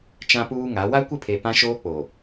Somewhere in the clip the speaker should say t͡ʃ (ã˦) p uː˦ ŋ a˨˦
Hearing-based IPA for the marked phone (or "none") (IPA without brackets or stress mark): ã˦